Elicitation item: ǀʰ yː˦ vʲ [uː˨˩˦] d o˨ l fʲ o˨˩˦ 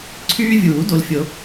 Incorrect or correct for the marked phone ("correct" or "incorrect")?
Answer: correct